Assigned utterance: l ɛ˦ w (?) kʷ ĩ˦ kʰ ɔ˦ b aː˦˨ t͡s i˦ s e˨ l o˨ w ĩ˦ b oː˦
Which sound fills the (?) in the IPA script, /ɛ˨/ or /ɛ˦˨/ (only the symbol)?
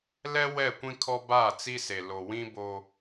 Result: ɛ˦˨